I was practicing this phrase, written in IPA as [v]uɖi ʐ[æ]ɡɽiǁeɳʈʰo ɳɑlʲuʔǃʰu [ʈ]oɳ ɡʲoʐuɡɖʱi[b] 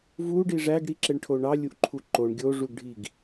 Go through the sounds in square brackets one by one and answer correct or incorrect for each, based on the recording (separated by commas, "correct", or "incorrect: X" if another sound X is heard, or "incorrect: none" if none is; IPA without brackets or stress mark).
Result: correct, correct, incorrect: ǃ, incorrect: ɡ